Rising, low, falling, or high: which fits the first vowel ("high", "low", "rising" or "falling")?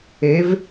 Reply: rising